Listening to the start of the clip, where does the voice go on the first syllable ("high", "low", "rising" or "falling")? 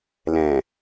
low